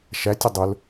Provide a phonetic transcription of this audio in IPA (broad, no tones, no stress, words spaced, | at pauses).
ʃætʲə dˤʊl